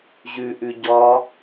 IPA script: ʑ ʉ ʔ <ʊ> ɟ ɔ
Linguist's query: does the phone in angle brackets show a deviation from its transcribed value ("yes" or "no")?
yes